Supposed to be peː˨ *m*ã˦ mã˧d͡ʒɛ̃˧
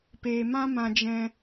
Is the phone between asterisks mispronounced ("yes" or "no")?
no